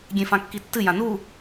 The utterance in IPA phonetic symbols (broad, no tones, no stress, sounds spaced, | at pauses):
ɡʲ ẽ f ã kː i tː ɨ j ã n u